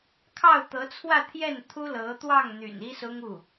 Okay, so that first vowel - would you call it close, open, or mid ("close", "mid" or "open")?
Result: open